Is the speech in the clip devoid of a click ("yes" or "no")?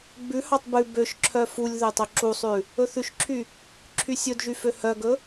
no